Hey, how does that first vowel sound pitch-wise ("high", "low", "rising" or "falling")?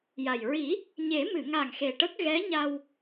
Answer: low